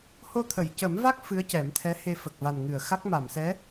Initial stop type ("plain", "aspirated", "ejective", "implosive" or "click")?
aspirated